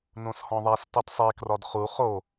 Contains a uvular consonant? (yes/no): yes